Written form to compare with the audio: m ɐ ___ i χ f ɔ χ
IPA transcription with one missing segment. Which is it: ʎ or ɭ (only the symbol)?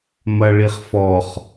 ɭ